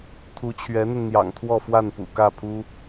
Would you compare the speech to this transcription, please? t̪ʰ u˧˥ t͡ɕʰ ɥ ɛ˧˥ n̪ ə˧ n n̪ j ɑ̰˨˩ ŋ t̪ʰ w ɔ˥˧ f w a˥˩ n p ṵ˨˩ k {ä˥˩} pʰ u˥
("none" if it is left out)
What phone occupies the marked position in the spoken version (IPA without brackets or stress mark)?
ä˥˩